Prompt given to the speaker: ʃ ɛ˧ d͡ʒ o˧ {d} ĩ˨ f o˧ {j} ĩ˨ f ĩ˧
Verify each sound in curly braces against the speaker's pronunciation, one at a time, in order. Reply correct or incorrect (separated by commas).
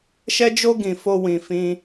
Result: incorrect, incorrect